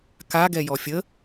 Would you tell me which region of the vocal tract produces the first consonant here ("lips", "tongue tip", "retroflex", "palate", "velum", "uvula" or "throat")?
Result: velum